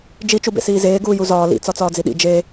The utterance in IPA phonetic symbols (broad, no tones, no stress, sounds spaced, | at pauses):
d͡ʒ i t͡ʃ u b ḛ s iː z eː ɡ uː j u z ɒː l ḭ t͡s ɒ t͡s ɒː d͡z i ɗ ḭ d͡ʒ e